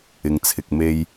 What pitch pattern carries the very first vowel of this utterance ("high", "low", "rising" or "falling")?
low